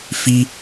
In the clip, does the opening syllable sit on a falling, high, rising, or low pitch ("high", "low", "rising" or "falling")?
high